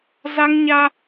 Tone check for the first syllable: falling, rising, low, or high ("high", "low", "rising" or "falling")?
high